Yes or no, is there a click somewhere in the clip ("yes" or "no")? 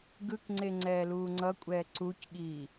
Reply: yes